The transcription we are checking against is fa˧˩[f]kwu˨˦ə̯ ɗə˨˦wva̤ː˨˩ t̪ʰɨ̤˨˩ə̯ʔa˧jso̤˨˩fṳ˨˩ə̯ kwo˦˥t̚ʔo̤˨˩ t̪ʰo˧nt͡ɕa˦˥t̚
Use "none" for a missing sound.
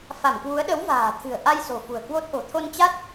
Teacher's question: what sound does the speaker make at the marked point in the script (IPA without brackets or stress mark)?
m